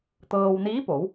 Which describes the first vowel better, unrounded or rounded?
unrounded